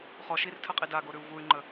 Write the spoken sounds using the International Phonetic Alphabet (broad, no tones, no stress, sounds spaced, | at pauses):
χ ɔ ʃ i r tʰ ə qʼ i d a ɡ o ɾ ʉ u̯ v u y̯ ŋ͡ǃ ə